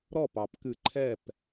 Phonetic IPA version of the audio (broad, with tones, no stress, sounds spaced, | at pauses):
ɾ ɔ˥˩ p ɑ˨˩˦ p k ɨ˨˩˦ ǃʰ ɛ˥˩ p